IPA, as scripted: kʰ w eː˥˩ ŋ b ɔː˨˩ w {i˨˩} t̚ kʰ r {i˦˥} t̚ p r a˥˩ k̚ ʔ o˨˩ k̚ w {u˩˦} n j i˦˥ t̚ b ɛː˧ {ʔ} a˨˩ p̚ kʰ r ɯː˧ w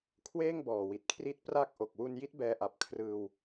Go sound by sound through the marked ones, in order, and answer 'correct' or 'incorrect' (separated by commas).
correct, correct, incorrect, correct